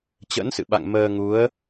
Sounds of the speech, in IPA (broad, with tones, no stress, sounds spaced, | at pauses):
t͡ɕ ə̰˧˥ n s ɨ̰˧˨ ɓ a̰˧˨ ŋ m əː˧ ŋ u˨˦ ə̯